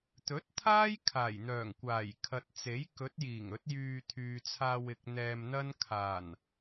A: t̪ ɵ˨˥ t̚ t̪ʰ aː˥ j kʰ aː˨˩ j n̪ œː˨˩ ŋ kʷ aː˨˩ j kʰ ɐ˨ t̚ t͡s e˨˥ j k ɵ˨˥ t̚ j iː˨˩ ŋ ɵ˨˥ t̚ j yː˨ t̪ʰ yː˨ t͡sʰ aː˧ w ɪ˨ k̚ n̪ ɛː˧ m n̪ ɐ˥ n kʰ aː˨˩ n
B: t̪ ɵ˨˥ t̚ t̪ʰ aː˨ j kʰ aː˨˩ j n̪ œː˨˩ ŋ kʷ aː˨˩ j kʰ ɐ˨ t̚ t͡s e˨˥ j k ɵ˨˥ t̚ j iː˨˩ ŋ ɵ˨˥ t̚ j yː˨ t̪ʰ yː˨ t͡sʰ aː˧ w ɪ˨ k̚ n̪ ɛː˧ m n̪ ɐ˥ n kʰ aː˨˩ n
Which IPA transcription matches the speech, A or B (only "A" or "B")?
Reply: A